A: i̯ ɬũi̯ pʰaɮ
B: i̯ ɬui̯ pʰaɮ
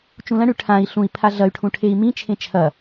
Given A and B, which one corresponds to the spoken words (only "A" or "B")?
A